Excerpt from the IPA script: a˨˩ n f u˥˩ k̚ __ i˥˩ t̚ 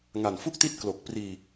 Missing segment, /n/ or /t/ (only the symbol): t